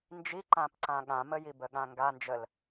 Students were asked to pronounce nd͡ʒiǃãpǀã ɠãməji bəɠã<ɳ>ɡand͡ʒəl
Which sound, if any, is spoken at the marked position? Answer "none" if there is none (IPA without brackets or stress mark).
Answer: ŋ